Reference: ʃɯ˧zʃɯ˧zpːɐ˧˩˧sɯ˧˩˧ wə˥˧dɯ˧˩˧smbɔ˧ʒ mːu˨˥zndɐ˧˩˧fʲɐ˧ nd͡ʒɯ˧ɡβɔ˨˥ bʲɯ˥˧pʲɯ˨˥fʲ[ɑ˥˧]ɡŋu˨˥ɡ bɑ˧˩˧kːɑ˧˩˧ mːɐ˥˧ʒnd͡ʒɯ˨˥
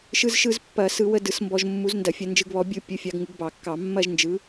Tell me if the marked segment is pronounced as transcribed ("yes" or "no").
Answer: no